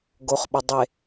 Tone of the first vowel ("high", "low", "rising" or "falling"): low